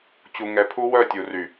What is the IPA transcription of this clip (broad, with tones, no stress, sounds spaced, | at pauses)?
t͡ɕ u˨ ŋ ɛ˨ pʰ u˦ w œ˦˨ tʲ u˨ r y˨